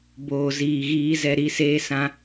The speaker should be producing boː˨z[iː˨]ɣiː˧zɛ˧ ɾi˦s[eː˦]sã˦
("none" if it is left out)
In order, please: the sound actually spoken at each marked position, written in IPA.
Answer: iː˨, eː˦

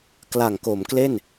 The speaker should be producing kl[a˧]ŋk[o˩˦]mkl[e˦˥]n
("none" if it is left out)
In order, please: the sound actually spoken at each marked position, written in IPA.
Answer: a˨˩, o˩˦, e˥˩

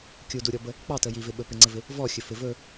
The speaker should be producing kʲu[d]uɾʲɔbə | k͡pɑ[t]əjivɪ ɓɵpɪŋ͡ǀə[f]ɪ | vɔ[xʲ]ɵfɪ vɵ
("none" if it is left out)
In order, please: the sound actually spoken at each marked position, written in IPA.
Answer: d, t, v, xʲ

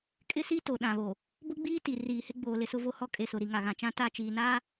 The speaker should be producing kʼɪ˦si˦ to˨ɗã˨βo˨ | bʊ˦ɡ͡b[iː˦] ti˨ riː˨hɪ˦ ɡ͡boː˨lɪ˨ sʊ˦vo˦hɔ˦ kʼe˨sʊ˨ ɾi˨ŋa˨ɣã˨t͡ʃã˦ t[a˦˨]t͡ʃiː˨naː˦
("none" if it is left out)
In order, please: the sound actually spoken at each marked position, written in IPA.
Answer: iː˦, a˦˨

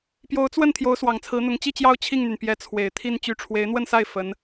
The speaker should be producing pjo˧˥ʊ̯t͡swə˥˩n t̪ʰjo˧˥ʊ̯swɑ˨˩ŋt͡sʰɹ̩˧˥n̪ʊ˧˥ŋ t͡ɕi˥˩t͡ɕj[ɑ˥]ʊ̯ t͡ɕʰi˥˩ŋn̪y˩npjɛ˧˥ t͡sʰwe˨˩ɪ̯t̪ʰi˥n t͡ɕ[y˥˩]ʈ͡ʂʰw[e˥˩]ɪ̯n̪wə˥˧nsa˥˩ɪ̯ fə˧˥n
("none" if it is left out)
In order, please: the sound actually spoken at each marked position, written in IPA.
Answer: ɑ˥, y˧˥, e˧˥

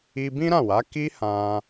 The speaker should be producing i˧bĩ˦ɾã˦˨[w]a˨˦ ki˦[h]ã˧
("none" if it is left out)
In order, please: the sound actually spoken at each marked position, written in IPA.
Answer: w, h

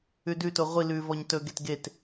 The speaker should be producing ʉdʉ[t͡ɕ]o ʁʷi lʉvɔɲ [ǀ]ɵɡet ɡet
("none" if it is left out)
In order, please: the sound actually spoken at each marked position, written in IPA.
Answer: t, t

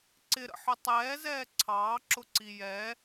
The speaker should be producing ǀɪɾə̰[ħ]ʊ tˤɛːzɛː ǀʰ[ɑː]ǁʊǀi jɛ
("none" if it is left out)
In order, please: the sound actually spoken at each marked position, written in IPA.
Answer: ħ, ɑː

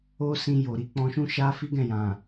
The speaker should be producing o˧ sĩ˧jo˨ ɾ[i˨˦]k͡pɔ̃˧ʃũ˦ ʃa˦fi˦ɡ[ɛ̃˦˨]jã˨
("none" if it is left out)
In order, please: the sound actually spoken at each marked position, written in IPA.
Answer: i˨˦, ɛ̃˦˨

